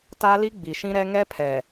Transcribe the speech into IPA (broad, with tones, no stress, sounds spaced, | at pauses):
t a˦ l i˦ ɡ͡b i˨ ʃ ĩ˦ ɾ ɛ˦ ŋ ɛ˦ pʰ ɛ˨